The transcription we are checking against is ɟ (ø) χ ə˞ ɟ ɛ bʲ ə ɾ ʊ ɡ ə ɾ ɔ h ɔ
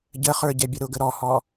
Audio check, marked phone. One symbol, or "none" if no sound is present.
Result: ə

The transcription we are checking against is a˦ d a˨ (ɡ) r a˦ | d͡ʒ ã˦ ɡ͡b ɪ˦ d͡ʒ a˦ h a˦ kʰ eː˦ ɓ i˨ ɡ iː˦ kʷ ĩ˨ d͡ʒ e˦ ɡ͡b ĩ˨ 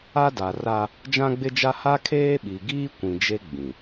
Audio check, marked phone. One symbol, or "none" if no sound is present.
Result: none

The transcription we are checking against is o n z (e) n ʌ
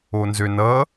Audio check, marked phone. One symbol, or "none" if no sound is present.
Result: ø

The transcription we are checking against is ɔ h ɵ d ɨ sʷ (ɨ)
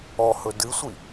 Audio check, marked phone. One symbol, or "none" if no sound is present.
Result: i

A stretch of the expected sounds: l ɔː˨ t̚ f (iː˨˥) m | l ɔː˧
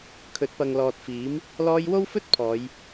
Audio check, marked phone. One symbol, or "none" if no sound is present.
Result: iː˨˥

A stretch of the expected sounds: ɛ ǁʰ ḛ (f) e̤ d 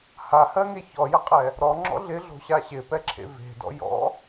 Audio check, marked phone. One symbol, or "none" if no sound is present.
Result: v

